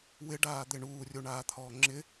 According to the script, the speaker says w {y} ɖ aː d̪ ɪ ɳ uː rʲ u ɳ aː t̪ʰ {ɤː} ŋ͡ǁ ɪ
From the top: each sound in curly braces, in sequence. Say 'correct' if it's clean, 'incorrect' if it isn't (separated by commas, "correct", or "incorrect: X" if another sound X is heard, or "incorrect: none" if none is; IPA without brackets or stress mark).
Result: incorrect: ɪ, incorrect: ɔː